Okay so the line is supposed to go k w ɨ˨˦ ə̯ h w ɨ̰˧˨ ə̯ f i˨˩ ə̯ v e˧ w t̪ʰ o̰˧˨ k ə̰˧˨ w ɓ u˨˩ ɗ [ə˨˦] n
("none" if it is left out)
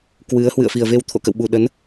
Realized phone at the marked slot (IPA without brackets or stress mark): ə˨˦